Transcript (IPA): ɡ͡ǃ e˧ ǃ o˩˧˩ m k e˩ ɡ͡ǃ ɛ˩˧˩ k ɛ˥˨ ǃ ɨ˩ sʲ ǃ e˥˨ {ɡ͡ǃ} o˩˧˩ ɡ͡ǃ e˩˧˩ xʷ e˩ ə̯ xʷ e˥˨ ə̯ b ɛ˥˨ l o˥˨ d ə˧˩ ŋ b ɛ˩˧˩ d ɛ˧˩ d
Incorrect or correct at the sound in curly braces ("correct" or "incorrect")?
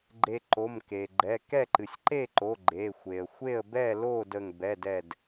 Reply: incorrect